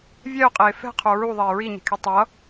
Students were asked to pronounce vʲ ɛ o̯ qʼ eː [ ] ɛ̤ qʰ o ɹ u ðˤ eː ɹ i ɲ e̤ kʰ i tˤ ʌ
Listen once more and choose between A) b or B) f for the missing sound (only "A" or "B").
B